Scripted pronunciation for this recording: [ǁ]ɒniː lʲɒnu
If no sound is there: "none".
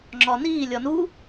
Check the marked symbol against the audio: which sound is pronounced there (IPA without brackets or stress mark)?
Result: ŋ͡ǁ